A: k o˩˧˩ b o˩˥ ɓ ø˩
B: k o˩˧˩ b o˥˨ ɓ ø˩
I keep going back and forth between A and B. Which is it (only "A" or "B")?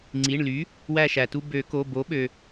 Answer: A